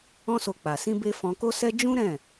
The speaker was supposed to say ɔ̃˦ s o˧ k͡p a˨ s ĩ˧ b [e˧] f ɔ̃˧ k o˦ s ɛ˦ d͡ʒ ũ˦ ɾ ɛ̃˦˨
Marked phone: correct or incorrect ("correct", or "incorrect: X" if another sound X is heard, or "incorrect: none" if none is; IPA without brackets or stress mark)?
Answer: correct